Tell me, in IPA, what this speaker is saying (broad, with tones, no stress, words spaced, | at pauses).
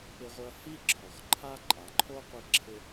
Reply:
pɪ˧ʁʷɪ˧ɐ̯ hi˦ǁʰɔ˨xǃʰa˦ ǃʼa˨ǃʰo˦qʷi˧ǁʰɪ˧